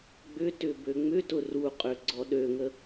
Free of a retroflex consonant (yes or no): yes